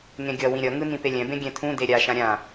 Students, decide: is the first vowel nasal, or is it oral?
nasal